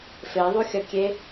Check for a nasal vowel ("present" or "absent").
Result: absent